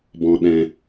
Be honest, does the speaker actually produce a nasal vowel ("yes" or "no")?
yes